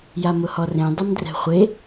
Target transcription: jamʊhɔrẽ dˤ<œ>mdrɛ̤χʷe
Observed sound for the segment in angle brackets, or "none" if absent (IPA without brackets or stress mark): ə